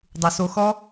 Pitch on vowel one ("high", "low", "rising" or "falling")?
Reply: low